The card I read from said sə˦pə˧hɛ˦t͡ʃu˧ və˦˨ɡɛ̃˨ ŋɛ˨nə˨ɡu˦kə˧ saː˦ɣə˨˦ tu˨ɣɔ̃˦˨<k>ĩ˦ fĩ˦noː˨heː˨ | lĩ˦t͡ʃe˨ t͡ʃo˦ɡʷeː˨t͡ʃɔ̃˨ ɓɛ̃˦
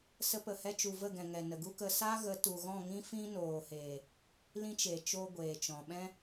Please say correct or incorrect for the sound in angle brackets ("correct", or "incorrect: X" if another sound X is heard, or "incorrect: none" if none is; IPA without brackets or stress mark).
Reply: incorrect: ŋ